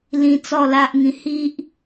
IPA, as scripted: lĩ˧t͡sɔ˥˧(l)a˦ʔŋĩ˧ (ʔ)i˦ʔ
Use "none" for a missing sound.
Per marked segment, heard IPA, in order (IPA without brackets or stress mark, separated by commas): l, h